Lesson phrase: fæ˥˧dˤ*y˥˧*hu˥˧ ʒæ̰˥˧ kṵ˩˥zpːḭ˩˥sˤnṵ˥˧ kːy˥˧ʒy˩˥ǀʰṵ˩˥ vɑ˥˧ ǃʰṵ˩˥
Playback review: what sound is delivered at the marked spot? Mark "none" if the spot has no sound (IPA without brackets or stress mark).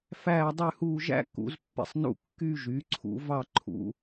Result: y˥˧